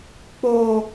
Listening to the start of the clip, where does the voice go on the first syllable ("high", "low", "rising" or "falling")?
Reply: high